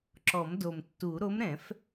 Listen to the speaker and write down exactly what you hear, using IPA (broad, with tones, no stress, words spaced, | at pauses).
ǁɔ˨˩˦mdo˨˩mtːu˨˩˦ ɾo˧˥mɾɛ̃˨˩˦f